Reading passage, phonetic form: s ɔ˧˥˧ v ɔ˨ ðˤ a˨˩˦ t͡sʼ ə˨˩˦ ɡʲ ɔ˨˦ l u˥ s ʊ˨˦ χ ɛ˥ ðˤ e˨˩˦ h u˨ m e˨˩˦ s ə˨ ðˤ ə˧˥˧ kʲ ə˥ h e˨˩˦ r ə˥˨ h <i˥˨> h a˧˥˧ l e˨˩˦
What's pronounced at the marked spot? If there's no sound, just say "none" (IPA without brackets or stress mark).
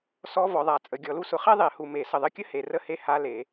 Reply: e˥˨